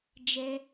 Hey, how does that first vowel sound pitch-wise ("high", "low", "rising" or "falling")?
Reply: high